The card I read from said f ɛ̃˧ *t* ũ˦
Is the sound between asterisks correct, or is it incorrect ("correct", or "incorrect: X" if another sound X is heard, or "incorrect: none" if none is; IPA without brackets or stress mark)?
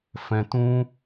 correct